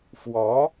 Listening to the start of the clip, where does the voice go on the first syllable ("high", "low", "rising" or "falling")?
rising